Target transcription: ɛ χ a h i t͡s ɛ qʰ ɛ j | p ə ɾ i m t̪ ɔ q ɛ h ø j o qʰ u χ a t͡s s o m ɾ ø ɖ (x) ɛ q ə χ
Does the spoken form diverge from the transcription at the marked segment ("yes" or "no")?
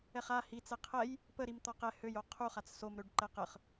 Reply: yes